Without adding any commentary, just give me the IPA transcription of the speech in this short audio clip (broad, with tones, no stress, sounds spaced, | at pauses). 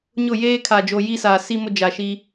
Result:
ɲ ʊ˦˨ j eː˦ kʰ a˨ d͡ʒ o˨ j i˦ s aː˨ s i˦ m ʊ˦ d͡ʒ a˨ ʃ iː˦